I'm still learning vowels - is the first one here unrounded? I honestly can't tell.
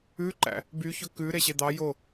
no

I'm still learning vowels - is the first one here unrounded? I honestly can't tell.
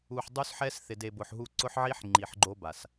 no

